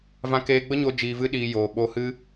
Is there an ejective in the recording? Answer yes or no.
no